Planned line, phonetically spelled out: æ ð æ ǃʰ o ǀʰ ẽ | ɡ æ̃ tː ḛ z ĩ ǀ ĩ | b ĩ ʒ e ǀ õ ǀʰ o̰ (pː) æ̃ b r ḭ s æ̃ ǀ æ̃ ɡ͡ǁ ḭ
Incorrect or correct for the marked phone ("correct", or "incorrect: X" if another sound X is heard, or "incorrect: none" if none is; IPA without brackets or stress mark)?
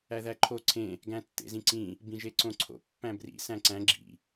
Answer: correct